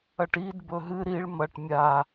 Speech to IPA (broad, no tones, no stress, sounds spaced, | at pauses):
ɐ ʈ i d b ɵ ɦ ɨ ɾ i ɭ m ɐ ʈ mʲ a